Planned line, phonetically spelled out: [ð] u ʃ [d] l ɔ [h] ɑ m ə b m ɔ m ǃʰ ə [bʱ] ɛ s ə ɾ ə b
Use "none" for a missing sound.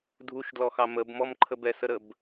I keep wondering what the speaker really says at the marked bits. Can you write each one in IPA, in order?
dʱ, d, x, b

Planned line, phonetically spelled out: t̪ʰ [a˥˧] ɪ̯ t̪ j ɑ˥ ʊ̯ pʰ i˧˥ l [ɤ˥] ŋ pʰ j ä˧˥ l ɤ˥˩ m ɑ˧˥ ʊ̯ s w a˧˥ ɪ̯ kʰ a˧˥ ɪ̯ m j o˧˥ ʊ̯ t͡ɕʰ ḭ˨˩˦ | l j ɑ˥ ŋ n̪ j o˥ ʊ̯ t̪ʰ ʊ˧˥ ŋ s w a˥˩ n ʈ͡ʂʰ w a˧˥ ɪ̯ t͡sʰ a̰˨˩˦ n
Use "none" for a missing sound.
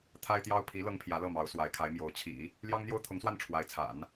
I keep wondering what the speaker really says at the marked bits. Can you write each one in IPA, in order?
a˥, ɤ˥

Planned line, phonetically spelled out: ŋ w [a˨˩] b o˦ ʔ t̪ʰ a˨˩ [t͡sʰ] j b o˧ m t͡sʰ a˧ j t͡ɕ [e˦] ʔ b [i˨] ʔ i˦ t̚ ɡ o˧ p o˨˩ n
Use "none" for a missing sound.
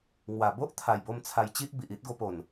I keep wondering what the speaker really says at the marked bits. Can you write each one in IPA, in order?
a˨˩, none, i˦, i˨

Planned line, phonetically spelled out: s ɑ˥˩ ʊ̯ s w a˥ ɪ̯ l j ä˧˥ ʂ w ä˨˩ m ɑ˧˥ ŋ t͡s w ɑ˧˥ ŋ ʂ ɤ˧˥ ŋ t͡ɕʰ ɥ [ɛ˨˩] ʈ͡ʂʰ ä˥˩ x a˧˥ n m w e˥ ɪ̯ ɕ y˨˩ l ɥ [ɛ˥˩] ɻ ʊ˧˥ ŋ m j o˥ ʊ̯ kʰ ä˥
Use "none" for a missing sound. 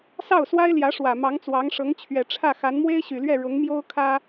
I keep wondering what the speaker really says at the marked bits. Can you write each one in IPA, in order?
ɛ˨˩, ɛ˥˩

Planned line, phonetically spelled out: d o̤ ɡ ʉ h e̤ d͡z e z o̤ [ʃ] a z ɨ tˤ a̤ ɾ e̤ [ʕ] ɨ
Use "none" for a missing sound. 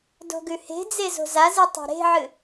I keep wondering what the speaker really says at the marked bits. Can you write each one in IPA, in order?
z, ʕ

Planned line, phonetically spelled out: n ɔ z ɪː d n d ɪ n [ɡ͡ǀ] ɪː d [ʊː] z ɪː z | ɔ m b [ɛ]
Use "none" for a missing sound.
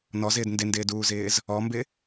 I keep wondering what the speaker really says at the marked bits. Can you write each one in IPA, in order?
d, uː, ɪ

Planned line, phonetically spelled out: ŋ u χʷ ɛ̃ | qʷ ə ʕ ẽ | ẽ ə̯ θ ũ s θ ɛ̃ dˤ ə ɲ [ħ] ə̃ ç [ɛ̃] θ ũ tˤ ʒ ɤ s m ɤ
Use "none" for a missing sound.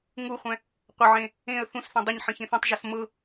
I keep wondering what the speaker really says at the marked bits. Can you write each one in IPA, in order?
ħ, ẽ

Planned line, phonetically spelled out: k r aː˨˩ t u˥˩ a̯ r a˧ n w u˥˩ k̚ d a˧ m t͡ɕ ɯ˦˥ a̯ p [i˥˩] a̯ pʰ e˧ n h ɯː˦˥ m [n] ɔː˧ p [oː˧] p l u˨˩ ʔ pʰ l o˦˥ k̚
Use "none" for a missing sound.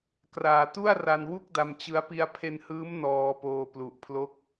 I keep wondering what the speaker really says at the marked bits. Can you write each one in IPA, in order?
i˧, n, oː˧

